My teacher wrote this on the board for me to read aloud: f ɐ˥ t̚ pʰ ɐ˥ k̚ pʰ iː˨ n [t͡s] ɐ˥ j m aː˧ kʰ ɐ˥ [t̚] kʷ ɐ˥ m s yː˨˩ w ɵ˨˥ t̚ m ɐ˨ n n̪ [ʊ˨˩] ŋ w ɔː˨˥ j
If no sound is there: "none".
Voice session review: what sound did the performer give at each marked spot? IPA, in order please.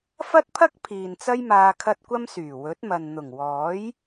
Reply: t͡s, t̚, ʊ˨˩

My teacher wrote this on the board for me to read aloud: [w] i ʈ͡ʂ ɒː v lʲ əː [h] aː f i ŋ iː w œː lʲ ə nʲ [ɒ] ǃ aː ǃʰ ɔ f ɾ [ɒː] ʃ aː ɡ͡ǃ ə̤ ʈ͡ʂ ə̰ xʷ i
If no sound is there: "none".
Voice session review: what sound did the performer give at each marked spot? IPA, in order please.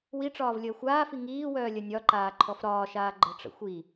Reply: w, xʷ, ɒ, ɒː

